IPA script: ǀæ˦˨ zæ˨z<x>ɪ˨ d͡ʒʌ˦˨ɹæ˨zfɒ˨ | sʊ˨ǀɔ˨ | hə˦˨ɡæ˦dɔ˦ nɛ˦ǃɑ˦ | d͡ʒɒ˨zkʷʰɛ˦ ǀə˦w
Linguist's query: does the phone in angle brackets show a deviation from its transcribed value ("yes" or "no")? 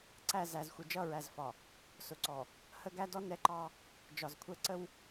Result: yes